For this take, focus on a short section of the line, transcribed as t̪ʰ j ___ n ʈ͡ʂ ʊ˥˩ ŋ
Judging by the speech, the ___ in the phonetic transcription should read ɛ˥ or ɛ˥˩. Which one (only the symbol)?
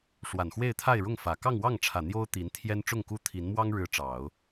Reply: ɛ˥